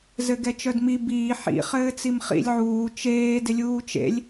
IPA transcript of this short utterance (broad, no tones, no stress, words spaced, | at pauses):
zɘɡɛt͡ʃœdmi biː ħḭ χɘːt͡simχḭlʲ ʕuː t͡ʃeː dɪlʲuːt͡ʃḛlʲ